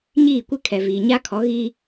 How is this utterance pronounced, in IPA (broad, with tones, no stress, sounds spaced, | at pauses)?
ɲ iː˦˨ kʷ ɪ˦ kʰ ɛ˨ v iː˨ ɲ a˦ kʰ ɔ˨˦ ɣ iː˦